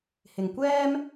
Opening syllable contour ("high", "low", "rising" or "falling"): low